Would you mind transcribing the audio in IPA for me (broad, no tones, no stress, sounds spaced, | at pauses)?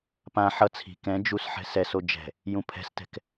p ã ħ ʌ t͡sʰ i̤ k ɛ̃ d͡ʒ u s ħ ɛ̤ s ɛ s o d͡ʒ ɛ̤ | j ũ pʰ ɛ̤ s t ɛ̤ k